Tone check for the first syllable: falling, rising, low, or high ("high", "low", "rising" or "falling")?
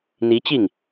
rising